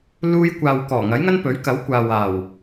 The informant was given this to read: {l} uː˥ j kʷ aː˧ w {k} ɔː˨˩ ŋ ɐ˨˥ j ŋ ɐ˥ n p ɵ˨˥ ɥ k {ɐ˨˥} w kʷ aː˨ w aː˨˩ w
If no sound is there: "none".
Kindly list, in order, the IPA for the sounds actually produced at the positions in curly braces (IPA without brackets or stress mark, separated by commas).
l, k, ɐ˨˥